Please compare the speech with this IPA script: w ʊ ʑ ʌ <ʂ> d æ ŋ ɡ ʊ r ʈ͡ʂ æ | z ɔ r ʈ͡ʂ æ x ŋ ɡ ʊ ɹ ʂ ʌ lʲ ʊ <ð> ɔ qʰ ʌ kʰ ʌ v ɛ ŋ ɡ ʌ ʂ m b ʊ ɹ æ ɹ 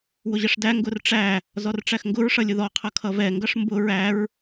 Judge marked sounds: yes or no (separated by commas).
yes, yes